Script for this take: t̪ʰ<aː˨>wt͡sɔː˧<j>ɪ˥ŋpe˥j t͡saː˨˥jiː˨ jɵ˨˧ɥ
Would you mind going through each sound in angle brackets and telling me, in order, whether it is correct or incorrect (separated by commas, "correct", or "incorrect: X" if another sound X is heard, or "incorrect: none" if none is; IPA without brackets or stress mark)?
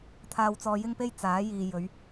incorrect: aː˧, correct